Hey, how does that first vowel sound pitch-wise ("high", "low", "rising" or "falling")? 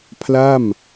falling